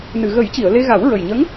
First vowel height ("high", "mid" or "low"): high